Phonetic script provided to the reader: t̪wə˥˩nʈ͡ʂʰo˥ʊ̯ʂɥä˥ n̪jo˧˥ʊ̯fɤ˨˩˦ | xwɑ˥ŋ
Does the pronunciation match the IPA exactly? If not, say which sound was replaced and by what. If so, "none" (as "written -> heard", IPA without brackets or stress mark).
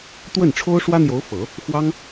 ɥ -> w